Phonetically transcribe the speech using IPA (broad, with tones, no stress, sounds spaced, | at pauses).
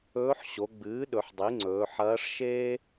ɵː˧˥ ħ ɕ o˩˧ ɡ͡b ɨː˩˥ ɗ ɵ˩˧ ħ dˤ i˩˥ ŋ͡ǀ ɵː˩˧ ħ ɐː˧˥ ʂ ʃ eː˥